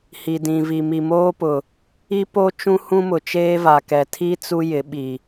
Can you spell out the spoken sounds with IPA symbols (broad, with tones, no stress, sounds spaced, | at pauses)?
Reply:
h i˨ d ĩ˨ v i˨ m i˨ m oː˦ p ʊ˨ | i˦ p o˦ t͡ʃ ũ˦ h ũ˦ m ʊ˨ t͡ʃ eː˦ v a˨ k ɛ˨ tʰ i˦ t͡s u˦ j ɪ˨˦ ɓ i˨